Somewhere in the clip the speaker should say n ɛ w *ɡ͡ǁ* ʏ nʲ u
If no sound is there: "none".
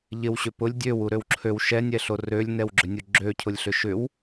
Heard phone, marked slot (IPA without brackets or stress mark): ɡ͡ǁ